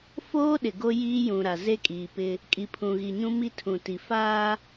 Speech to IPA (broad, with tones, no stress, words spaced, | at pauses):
foː˦ɗɪ˨ ɡo˦jiː˦jũ˨ɾa˨ ze˦kʼiː˨pɪ˦ | kʼi˨pʰũ˨ɣi˨ɲũ˦ mi˦tʰũ˨ti˨ faː˦